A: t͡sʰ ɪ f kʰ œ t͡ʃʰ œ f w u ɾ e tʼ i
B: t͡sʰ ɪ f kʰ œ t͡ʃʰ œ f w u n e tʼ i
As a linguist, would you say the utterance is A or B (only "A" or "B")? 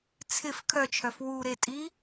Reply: A